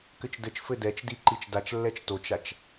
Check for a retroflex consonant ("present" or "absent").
absent